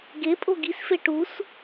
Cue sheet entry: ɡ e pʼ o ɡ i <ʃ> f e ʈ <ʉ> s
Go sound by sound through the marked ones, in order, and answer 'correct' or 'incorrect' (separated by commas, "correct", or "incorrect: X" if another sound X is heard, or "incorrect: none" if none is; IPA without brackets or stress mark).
incorrect: s, incorrect: u